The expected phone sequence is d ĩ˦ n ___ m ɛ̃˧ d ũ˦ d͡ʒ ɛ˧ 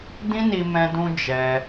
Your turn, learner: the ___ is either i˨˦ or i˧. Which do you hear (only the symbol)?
i˧